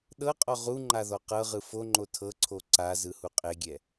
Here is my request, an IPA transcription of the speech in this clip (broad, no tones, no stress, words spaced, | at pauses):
ɗɤqʼɔ ʁuŋ͡ǃa ðɔqɤʁɯ foŋ͡ǃo tʰɤǀʰo ǀa zɯhuqʼeɡʲɛ